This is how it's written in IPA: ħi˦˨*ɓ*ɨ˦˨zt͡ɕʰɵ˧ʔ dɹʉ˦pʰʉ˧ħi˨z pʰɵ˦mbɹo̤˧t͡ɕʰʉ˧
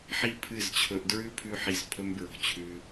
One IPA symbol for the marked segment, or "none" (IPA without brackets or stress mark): pʰ